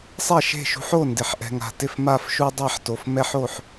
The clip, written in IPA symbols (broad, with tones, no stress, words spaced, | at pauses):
sˤɛ˥˩ʃe̤˥˩ʃṳ˦ħ o˥˩ndɪ˨ħʔɛ̤˨ŋa̤˨ tɪ˥˩fma˥˩fʃu˦ dˤa˥˩ħto˨f mɛ˦ħ o˥˩ħ